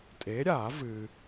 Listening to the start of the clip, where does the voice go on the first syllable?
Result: rising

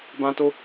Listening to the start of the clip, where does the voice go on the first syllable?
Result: high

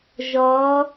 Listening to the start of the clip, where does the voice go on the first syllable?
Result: rising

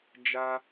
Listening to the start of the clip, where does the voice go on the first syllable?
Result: high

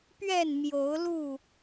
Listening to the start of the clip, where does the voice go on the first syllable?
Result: falling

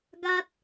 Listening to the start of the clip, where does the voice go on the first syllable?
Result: high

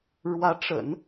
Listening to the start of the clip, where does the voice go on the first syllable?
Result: rising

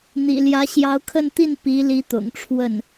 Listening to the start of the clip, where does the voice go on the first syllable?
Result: low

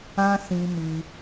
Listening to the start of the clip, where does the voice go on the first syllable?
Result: high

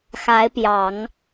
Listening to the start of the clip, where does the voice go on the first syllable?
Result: rising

